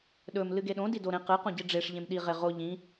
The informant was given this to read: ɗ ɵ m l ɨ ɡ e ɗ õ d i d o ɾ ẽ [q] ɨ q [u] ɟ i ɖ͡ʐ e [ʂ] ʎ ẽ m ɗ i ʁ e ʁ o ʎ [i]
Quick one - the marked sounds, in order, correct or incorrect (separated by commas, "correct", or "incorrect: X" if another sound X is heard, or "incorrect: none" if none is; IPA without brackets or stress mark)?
correct, incorrect: ũ, correct, incorrect: ĩ